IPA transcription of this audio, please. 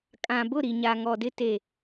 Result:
kʼã˨bʊ˦˨ɾi˨ ɲa˨ŋɔ˨dɪ˦ te˨

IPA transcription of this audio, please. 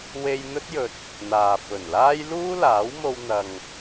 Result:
we˧j n̪ɵ˥t̚jɵ˨t̚ | n̪aː˨fɵ˨˩nlaː˥j luː˥laː˨˥w mo˧wn̪ɐ˨ŋ

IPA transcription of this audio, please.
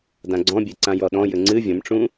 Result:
dãɡ͡ǀɔ̃bʲe ǀãjɔɗɔ̃ jɘŋ͡ǀɨ vʲɐ̃mʈ͡ʂũ

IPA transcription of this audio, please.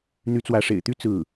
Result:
n̪y˧˥t͡swä˧˥ʂḛ˨˩ɪ̯t̪y˥ t͡sɹ̩˥˩

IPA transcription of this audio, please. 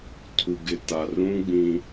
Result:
tʰu˨ɡɪ˨ ta˨rũ˦ɡ͡bĩ˦

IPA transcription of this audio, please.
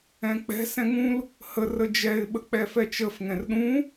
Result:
ɛ̃k͡pɛ̤ sɛ̃ŋũl | hə rəd͡ʒɛɪ̯ ɓək͡pɛfɛt͡ʃəf ŋɛ̃rɗũ

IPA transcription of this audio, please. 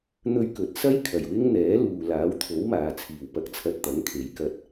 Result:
n̪ɵ˧ɥkɵ˨t̚ sɐ˥j kʰɐ˨˩jwɪ˥ŋn̪ɛː˨˥ luː˨ laː˨˥wt̪ʰo˨˥wmaː˨t͡sʰiː˨˩w pɐ˨˥k̚t͡sʰɐ˨t̚ t̪ɐ˨˥ŋkʰe˨˧jkɐ˧t̚

